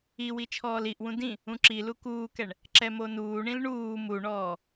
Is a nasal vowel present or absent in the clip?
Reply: present